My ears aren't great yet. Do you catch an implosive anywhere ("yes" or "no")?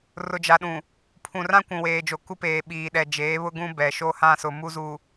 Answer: yes